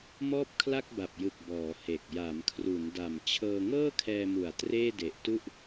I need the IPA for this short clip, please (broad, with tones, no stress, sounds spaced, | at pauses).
m ɔː˥˩ p̚ kʰ l a˥˩ k̚ b a˨˩ p̚ j ɯ˨˩ k̚ b ɔː˩˦ h e˨˩ k̚ j a˩˦ m kʰ r u˩˦ n d a˨˩ m t͡ɕʰ ɤː˧ ŋ ɤː˥˩ kʰ ɛː˧ m u˨˩ a̯ t r eː˥˩ d e˨˩ ʔ t u˥˩ ʔ